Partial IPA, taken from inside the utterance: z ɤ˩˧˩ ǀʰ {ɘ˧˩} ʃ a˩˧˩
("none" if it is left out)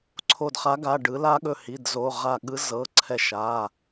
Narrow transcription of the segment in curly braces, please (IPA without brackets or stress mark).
ɛ˧˩